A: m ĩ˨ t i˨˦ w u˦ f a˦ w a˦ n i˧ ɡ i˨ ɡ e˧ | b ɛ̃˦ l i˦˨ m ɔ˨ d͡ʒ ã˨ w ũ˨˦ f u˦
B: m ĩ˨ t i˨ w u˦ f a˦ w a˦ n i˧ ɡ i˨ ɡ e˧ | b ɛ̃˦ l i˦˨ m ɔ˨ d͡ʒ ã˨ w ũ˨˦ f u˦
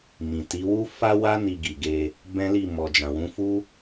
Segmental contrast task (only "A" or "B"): A